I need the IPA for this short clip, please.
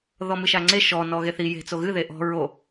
ð ɔ m ɨ ʃ a ŋ͡ǀ e ʃ ɔ n ɔ ɣ e θ i j e̤ t͡s o ɣ ɨ ð e ʔ ɔ̤ ɹ o

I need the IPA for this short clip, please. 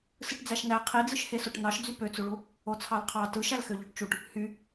s ɯ ʈ d͡z æ ʃ n æ qʰ i d͡z ɯ ʃ h e s o ʈ n ɑ ʃ d͡z y p ø t͡s u ɭ u | o t͡sʰ ɑ l qʰ ɑ t ɯ ʃ æ l x ø ʎ ø ʈ t͡ʃ u ʈ | h y

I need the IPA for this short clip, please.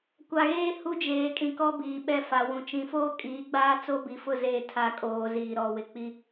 kʷ a˨ ɣ eː˦ h u˦ d͡ʒ eː˨ kʼ ĩ˨ k ɔ˦ b iː˨ ɓ ɛ˦ f a˨ w ũ˨ t͡ʃ ĩ˨ f oː˦ kʼ iː˨˦ ɡ͡b aː˦ t͡s o˦ b i˨ f ʊ˦˨ z e˦˨ tʰ a˦˨ kʼ oː˨ z iː˨ ɾ ɔ˨ w ɪ˨ k͡p i˦

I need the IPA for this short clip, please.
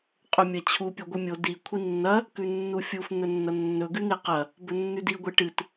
qʼ ɵ mʲ ɐ t͡ɕʰ u pʲ o ɡʷ ɨ mʲ o d i kʷʰ i nː ɐ | k ʉ nː u fʲ u f n̪ ɵ nː ɐ nː ɵ ɡ ʉ n̪ e q ɐ | b ɵ nː ʉ d i ɡʷ e ʈ ɨ t

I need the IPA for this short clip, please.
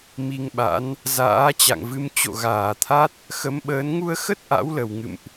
m i˧ ŋ ɓ a̰˧˥ n | z a̰ː˧˥ t͡ɕ a̰˧˨ ŋ v ɨ˧ m t͡ɕ o̰˧˨ ɣ aː˧˩ t̪ʰ a˦˥ t̚ | x ə˨˦ m ɓ əː˨˦ n ŋ u˧ ə̯ x ə˦˥ t̚ ʔ a̰˧˥ w l ə˨˩ w ŋ ɨ̰˧˨ m ʔ

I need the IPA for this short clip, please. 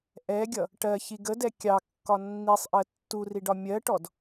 ʔ ɛ ɡʲ ʌ | ʈ ɜ ç i ɡ ə d ɛ kʲ ɑ kː ɒ nː i sˤ ʔ ɜ tː u r i ɖ ɒ mʲ ɜ ʈ ɔ d

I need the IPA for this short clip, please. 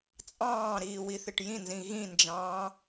t͡sʼ ɑ̃ː ɾ iː w i θ ɪ ʈ j ĩ n z ĩ ɣ ĩ n d͡ʒ ɑ̃ː

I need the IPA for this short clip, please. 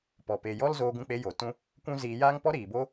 p ɔ˨ p e˨ j ɔ˦ l z oː˧ ɡ ũ˧ k͡p e˧ j o˨ t ũ˦ | kʷ ũ˦ z iː˧ j aː˦ ŋ p ɔ˦ ɾ iː˨ b o˦

